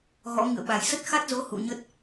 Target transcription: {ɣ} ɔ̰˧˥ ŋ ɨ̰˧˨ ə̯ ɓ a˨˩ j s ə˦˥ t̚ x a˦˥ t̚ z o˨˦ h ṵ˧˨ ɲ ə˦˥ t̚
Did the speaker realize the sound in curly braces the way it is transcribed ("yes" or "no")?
yes